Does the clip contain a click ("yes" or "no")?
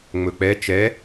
no